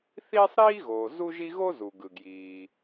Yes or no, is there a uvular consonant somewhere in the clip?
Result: no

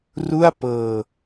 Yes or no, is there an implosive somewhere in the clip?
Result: no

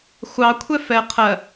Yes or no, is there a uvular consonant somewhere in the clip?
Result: yes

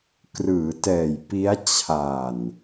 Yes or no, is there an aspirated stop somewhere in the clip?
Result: yes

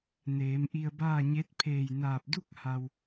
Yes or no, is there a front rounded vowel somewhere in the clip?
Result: no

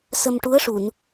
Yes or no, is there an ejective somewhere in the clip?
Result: no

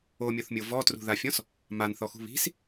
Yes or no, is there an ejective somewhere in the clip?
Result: no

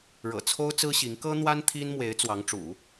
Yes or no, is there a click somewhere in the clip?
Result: no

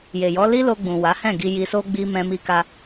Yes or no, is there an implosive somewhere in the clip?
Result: no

